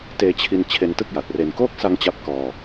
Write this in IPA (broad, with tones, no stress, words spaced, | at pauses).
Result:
teː˧t͡ɕʰi˧n t͡ɕʰe˧ntɯ˥˩k̚ ja˨˩t̚re˧n koː˥˩k̚sa˧ŋ t͡ɕa˥˩p̚kɔː˧